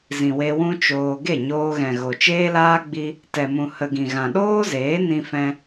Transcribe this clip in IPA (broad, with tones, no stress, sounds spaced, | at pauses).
z ĩ˨ w e˧ w ũ˦ t͡ʃ oː˧ ɡ e˦˨ ɲ oː˧ ɣ ɛ̃˨ ɣ o˨ t͡ʃ eː˦ l aː˦ ɡ͡b i˦ | t ɛ˨ m ũ˨ h ə˨ ɡ ĩ˨ ɣ ã˨ ɗ oː˦ z eː˨˦ n ĩ˧ f ɛ̃˧